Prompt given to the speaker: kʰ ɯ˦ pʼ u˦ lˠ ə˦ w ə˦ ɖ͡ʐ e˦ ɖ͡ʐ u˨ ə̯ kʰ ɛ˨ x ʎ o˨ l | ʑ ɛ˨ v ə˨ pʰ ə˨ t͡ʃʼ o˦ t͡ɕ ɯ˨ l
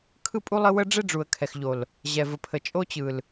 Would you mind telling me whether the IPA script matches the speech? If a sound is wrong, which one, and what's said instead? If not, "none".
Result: none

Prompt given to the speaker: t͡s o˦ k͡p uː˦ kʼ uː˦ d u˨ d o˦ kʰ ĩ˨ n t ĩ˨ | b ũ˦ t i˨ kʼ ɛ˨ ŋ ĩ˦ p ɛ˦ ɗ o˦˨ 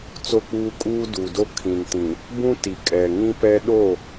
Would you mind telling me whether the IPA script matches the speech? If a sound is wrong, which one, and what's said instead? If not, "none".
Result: none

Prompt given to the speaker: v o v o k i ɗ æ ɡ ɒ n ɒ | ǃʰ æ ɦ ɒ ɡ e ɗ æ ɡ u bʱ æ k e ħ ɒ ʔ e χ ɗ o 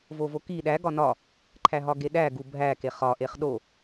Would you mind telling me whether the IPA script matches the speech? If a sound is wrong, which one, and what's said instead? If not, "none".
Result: ħ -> χ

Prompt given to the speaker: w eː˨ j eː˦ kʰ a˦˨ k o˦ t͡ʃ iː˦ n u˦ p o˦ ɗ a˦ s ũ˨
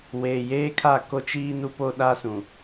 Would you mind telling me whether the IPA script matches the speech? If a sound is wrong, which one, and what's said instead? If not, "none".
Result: none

